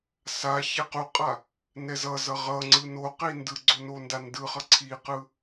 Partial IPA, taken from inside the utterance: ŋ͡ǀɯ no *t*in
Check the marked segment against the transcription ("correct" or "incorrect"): incorrect